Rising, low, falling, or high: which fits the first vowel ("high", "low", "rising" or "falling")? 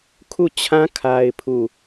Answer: falling